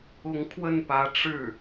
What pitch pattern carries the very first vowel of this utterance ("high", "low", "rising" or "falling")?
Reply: rising